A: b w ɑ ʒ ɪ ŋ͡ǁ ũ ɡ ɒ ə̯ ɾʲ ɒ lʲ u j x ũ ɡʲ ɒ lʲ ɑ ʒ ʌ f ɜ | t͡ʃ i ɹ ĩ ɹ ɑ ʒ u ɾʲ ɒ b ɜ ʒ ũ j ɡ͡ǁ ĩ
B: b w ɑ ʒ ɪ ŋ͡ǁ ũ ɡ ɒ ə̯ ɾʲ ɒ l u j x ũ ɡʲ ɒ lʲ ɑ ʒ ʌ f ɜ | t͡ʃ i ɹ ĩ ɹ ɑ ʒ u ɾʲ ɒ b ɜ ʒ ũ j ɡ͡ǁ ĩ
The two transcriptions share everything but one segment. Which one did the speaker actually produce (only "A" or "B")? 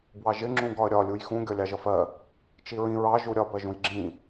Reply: A